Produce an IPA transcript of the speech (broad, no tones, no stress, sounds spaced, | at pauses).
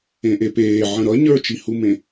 ẽ ʔ e p eː ʕ ə̃ ɾ ʌ ɲ ə˞ t͡ʃ i h u m ẽ